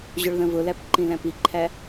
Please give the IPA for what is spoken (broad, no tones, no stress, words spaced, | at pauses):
ʑʊɭðə̃vʊlæp ǃĩlæ̃piǃʰæ